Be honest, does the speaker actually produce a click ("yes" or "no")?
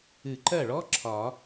yes